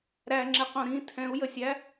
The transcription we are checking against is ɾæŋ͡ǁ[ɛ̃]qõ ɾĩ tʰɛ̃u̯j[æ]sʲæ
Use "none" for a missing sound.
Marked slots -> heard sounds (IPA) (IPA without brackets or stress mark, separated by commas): ɛ, ə